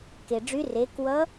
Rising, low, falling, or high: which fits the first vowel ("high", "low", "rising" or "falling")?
low